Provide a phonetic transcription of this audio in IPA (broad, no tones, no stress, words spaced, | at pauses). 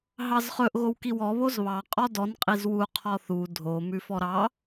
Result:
ɦɑzχɵʔ ɣowkiwɔ βozβɑ qʼɔdɔn qʼizwu qʰɔθu dʱo mʉfɔɾɑ